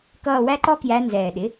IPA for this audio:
k ʌː˦˨ w æ˥ ǃ ɔ˥ k j æ˧˥ n z ɛː˨˩ ɗ ɪ˩˥

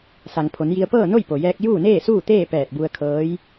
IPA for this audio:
s a˩ ŋ pʰ o˩˧ n j i˧ ə̯ p ɤː˥˨ n o˥˨ j p o˩ j ɛː˧ k̚ j uː˥˨ n eː˥˨ s uː˥˨ t̪ eː˥˨ p ɛː˧˩ t̚ b u˧ ə̯ kʰ ɤː˧˥ j

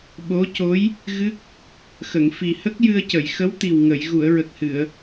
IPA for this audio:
ɓ o˧˥ c o˧˥ j | ɣ ɨ˦˥ k̚ | x ə˨˩˨ ŋ f i˨˩ h ə˦˥ k̚ j ɨ˧ ə̯ c ə˨˩˨ j x ə˧˥ w t̪ i˨˩ w ŋ ə˨˩˨ j ɣ u˨˩˨ ə̯ ɹ ə˨˩ k̚ h ɨ˨˩˨ ə̯

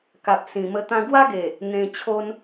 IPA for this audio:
k a˨ p̚ s ĩ˨˩ m ə˧ t̪ ã˧ ɡ w a˦ ɡ e˨˩ | n̪ ẽ˧ t͡ɕʰ o˦ n

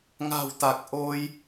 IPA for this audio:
ŋ a̤˨˩ w t̪ a˨˩ k̚ ʔ o˧ j

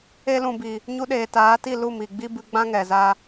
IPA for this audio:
e˧ l ũ˨ b i˨ | ɲ u˧ ɗ eː˨ t aː˨˦ t i˦˨ l u˦˨ m i˨ ɡ͡b i˦ b ɨ˧ ɡ͡b ã˦ ŋ ɛ˨ z a˧

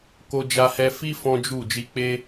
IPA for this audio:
k o˧ d͡ʒ a˧ h ɛ˧ f i˦ f ɔ̃˦ d͡ʒ u˦˨ d͡ʒ i˧ k͡p e˦

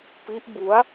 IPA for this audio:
p i˦˥ ʔ b u˦˥ a̯

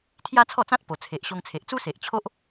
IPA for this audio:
t̪ʰ j a˦ t͡sʰ ɔ˥˧ t͡s ã˦ t̚ p o˨˩ t͡sʰ e˨ ʔ ɕ o˧ ŋ t͡sʰ e˨ ʔ t͡s u˦ s e˨ ʔ t͡ɕʰ o˦ ʔ

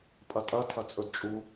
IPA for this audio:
pʼ ɐ tʼ ɐ tʰ ɐ t͡sʼ ɵ d t͡ʃʼ u

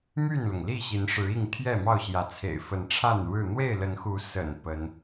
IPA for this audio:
m y˥˨ n l ʊ˩ ŋ l i˥˨ ɕ i˨˦ n ʂ ɻ̩˨˦ i˥˨ ŋ t̪ʰ j ɛ˥˨ m ɑ˥˨ ʊ̯ ɕ j ä˨˦ t͡sʰ ḛ˨˩ ɪ̯ f ə˨˦ n ʈ͡ʂʰ a˥˨ n ɻ ɻ̩˥˨ n̪ w e˥˨ ɪ̯ l ə˨˦ n x u˨˦ s ə̰˨˩ n p ə˨˦ n

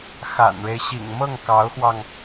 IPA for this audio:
x a̰˨˩ n ɻ e˦ ɪ̯ ɕ ḭ˨˩ ŋ m ɤ˥˩ ŋ k ɑ˧˥ ʊ̯ x w ɑ˧ ŋ

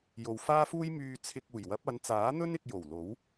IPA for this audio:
j o˨ w f aː˥ f uː˥ j m yː˧ t͡sʰ ɪ˧ k̚ uː˨˩ j w ɐ˨˥ p̚ ɐ˨˧ n t͡s aː˨˥ n̪ ɵ˥ n ɪ˧ k̚ j o˨˩ w l o˨˥ w

